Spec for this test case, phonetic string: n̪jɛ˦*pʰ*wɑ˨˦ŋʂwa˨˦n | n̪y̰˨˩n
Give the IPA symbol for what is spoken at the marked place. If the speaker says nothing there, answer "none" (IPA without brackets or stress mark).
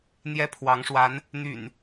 pʰ